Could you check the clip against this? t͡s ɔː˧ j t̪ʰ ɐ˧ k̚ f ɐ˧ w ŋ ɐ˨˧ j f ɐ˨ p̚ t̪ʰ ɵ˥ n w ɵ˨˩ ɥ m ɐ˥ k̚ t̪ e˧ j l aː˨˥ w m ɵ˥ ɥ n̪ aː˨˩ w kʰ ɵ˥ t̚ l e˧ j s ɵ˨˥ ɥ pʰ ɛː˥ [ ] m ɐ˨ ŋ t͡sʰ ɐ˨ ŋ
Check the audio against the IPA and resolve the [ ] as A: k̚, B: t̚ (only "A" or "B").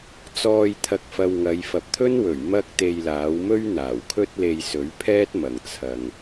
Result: B